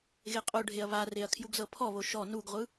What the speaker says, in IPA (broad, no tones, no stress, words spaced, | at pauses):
ɣeqʼoɖʱeɐ̯ βareɐ̯ kʰjuɡzɤpʰɔβo ʃɔ nuɡʁʷɯ